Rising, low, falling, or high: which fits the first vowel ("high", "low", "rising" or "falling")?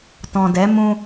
low